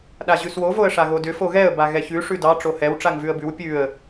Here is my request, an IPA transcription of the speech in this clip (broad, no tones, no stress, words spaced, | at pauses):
ɗaʑʉswo voə̯ʂaɣodʏ foɣɛə̯ baɣɛçʉ ʂʉdɑ ʈ͡ʂohɛw ʈ͡ʂaŋvʉə̯bʉw pʲʉə̯